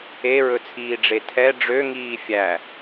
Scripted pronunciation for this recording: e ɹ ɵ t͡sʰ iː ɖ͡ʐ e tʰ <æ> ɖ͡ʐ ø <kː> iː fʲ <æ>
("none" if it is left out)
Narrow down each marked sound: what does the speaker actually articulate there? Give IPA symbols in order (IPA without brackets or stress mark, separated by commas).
ɛ, ŋ, æ